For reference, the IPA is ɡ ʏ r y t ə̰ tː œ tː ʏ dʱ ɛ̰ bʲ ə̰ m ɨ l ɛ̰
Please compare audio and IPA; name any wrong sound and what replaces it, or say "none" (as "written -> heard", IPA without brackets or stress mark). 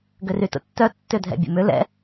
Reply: ɨ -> ʏ